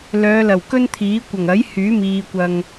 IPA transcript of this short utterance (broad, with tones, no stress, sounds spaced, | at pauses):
l œː˨˧ l ɐ˨˩ w k ɵ˥ n t̪ʰ iː˨˥ kʷ ɐ˨˩ ŋ ɐ˨˥ j h yː˨˥ m iː˨ kʷ ɐ˨ ŋ